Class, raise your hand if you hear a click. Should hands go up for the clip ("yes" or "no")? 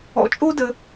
no